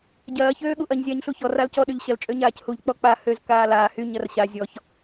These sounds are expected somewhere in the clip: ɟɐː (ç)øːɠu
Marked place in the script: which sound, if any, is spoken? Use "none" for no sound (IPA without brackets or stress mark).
ç